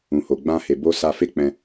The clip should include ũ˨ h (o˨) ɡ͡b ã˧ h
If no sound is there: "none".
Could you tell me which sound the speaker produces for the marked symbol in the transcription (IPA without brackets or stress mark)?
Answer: o˨